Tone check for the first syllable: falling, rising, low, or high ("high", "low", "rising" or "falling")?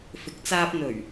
rising